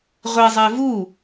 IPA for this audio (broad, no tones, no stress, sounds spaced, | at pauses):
ʁʷ e zˤ ɛ v u